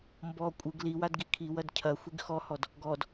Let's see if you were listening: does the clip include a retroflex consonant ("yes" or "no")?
no